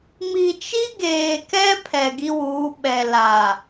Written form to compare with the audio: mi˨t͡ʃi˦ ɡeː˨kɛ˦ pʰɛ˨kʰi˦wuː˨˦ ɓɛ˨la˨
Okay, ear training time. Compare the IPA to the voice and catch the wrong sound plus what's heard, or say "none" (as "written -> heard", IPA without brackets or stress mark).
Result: kʰ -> ɡ